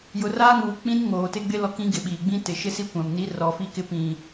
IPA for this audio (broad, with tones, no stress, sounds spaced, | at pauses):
j ʊ˨ r aː˦ ŋ uː˨ k͡p ĩ˦ n ŋ oː˨ t ɪ˦ ɡ͡b ɪ˦ l ɔ˦ k ĩ˦ ɡ ɪ˨ ɓ iː˨ ɡ͡b ĩ˦ t ɪ˨ ʃ ɪ˦ s i˦ kʷ ã˨ m n i˦ r ɔ˨˦ f i˦ k ɪ˦ p ĩ˨